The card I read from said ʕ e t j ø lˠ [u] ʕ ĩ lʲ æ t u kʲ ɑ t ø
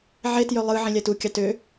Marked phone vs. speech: incorrect: ɯ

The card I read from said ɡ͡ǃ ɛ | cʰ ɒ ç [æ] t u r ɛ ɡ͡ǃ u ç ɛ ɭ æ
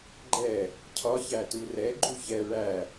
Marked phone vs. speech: correct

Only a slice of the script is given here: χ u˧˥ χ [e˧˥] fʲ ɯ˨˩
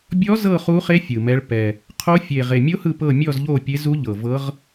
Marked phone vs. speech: correct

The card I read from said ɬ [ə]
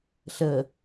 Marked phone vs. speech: correct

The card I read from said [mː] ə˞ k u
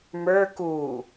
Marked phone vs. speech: incorrect: m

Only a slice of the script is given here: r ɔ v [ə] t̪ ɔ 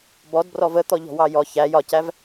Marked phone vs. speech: correct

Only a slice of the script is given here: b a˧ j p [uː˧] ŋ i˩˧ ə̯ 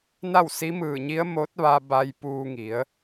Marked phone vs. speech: correct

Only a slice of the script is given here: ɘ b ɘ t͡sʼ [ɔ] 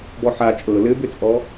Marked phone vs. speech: correct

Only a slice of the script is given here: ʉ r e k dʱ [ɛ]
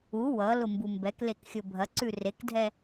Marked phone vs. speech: correct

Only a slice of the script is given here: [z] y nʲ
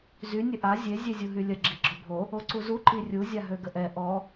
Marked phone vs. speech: correct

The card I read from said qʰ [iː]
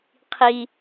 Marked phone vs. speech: incorrect: i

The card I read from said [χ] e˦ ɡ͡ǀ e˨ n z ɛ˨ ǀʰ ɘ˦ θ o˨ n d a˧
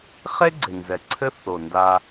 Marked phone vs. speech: correct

